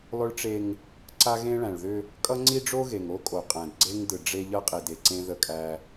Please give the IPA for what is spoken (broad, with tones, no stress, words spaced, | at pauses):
lˠʏ˦ɭʈ͡ʂe˦ŋ | ǀa˦ɣẽ˦ ɭæ̃˨ɭðʏ˦ | kʼʌ˦ŋ͡ǀi˦ɖ͡ʐo˦ ɣe˨ŋo˦kʼo˨qʼæ̃˨d ɡ͡ǀe˦ŋdɯ˨ ɖ͡ʐe˦ʎʌ˦ qʼi˨de˨ ǀẽ˦ðə˦˨kʼæ˦